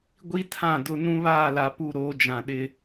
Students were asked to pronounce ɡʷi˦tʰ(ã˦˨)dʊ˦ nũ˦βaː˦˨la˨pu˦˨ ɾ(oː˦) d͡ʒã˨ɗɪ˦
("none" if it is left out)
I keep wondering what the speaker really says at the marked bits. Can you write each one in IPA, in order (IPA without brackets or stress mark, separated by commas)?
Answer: ã˦˨, oː˦